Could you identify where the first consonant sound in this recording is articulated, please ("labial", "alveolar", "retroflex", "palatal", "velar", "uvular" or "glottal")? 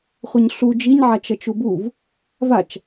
uvular